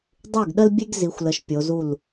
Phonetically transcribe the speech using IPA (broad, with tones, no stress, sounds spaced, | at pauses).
dˤ y˥˩ ɡ ɗ ə˥ l bʲ e˥ ɡ z i˨˦ xʷ l ə˨˦ ʃ pʲ o˨˦ z u˥˩ l